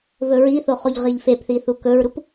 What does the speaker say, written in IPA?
vɵɹiθo χoʎʁiʎfepθi θukɵɹɾup

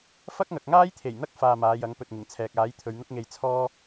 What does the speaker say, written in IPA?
fɐ˥k̚ŋɐ˨k̚ŋaː˥jt̪ʰe˨˩j n̪ɐ˥k̚ faː˧maː˨˧jɐ˨˥ŋ pɵ˨t̚ŋɪ˨˩ŋt͡sʰɛː˨k̚ aː˨˥jt̪ʰɵ˨˧ɥn̪ʊ˥k̚ŋe˧j t͡sʰɔː˥

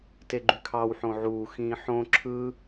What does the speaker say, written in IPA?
teɡ͡ǃykʰɑw ħõʕuː xĩːħõ ǁʰɯ

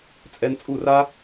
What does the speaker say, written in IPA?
t͡sʼɛ˧nt͡sʼu˥˩ra˥

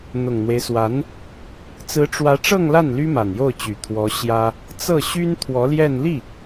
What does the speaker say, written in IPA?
n̪ʊ˨˩ŋn̪we˦ɪ̯swa˧˥n | t͡sɹ̩˧˥ʈ͡ʂwä˧˥ʈ͡ʂɤ˥˧ŋla˥˩n ly˥ma˨˩njo˥˩ʊ̯t͡ɕy˨˩ t̪ʰwɔ˧˥ ɕjä˥ | t͡sɤ˥˩ɕy˥n t̪ʰwɔ˧˥ljɛ˥˧n li˥˩

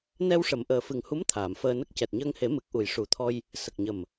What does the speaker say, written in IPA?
nɛ˧wʂə˨˩˨m ʔəː˨˩fɨ˨˩ŋhu˧˥m t̪ʰaː˨˩˨mfəː˧nə˦˥k̚ cɛ˨˩t̚ɲəː˧ŋhe˨˩˦ mɨ˨˩k̚ʔu˨˩j ʂu˨˩˦t̪ʰɔ˧j | sə˨˩k̚ɲə˨˩m

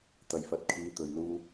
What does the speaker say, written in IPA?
t̪ɐ˨˩jfɐ˨˥t̚kʰiː˨˧ t̪ɵ˨ɥluː˥

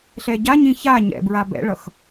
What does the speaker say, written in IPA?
ɬɛɟaɲĩ ça ɲɛ̰bɹa bɛ̰ɭʌx

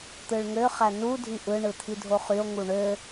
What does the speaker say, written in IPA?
t̪ɯɭŋøχæ nu dʱiʔɯ ɳɯt̪ʰidʱoχyo̯ ŋuɳø

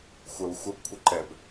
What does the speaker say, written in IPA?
xʷə˞wxʷəbkʷʰəǃɛb

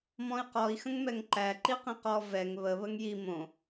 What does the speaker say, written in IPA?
mɔ̃i̯qɔi̯ xə̃ŋmɛŋǃæ ǃiqĩqɔ vɛŋ βə βəŋji mõ

